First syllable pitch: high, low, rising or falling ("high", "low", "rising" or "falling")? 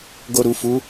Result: low